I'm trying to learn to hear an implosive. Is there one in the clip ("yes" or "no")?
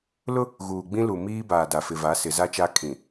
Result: no